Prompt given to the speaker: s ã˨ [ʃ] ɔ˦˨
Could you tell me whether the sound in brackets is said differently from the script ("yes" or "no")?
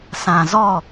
yes